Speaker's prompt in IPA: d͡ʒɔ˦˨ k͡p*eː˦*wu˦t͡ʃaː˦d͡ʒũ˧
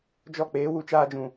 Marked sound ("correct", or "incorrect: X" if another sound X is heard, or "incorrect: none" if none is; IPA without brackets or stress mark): correct